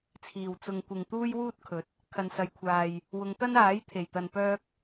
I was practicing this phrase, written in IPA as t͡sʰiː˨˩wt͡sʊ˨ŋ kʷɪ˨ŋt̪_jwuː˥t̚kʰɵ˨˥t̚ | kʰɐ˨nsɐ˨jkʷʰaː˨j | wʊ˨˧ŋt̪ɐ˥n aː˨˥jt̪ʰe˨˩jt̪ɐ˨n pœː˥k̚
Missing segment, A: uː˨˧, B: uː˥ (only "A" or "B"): B